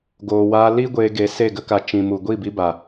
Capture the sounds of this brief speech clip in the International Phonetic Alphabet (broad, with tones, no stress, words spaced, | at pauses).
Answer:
ɡoː˨waː˧li˦ ɡʷeː˧ɡe˨˦ se˦˨ɡə˦ ka˨ t͡ʃĩ˨mu˨ ɡʷi˦˨bi˧ba˨